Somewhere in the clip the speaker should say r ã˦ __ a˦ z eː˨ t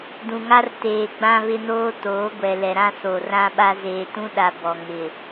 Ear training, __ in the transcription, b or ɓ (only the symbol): ɓ